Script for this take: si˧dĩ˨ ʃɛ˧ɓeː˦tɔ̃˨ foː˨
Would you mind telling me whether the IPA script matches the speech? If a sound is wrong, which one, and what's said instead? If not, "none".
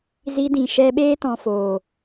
s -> z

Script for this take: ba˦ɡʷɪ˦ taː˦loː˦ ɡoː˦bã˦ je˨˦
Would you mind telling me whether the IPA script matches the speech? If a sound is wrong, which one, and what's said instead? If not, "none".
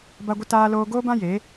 none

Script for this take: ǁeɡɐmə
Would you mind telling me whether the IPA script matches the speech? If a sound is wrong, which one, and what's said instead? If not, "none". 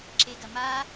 ə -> a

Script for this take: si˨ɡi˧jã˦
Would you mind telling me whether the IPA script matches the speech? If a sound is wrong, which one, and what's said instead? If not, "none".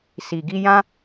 none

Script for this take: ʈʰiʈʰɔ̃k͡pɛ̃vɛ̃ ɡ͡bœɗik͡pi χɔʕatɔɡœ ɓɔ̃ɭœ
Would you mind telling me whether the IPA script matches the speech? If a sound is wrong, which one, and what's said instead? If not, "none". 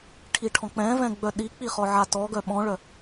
none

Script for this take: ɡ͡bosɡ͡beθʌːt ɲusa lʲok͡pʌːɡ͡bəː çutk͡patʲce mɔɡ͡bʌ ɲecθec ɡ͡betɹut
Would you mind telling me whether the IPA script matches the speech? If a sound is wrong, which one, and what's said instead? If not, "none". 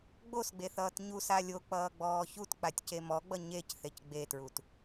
əː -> ɔː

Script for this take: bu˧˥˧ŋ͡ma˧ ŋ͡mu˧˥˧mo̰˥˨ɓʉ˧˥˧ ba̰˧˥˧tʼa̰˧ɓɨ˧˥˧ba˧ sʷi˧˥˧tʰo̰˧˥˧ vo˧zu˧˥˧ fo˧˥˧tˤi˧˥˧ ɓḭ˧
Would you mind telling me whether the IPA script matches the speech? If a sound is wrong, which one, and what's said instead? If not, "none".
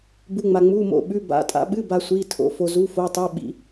v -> f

